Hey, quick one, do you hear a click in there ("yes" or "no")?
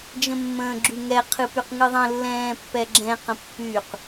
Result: yes